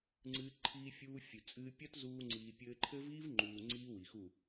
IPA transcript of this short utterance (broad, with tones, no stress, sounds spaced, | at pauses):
ŋ͡ǀ ɨː˧ ǃʰ iː˧ fʲ uː˧ fʲ ɨ˨ t͡sʼ ɨː˧ pʲ ɐ˦ t z uː˧ ŋ͡ǀ iː˨ pʲ ɘː˧ ǃʰ ɘ˦ v iː˦ v ŋ͡ǃ uː˨ ŋ͡ǀ iː˦ w i˨ x u˦˨